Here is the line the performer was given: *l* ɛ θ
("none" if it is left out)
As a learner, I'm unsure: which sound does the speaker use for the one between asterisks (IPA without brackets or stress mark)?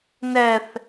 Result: n